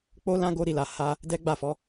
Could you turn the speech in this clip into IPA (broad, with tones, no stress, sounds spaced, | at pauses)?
k͡p o˦ l ã˦ ɡ o˧ ɾ i˨ l a˨ h a˧ | d ɛ˦ ɡ͡b a˦˨ f ɔ˨˦